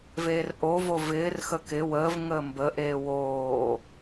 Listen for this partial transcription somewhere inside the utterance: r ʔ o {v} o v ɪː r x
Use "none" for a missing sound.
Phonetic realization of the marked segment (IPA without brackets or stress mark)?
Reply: v